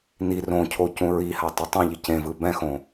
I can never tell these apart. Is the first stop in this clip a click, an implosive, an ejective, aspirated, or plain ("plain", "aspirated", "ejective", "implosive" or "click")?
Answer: aspirated